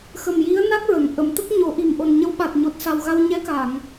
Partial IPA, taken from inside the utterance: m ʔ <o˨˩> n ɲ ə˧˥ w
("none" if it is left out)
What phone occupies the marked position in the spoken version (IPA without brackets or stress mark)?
o˨˩